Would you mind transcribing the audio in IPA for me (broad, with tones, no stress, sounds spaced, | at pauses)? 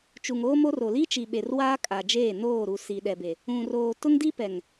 t͡ʃ u˨ ŋ oː˦ m o˦ r o˨ l i˦ t͡ʃ i˨ ɓ e˨ r w aː˦ kʼ a˨ d͡ʒ eː˦˨ n oː˦˨ ɾ u˨ s i˨ ɗ ɛ˨ b e˨ | ũ˨ r oː˨ t ʊ˦ ŋ d i˦ p ɛ˨ ŋ